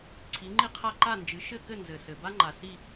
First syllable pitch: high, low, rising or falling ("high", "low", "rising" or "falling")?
rising